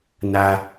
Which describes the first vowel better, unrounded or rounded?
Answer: unrounded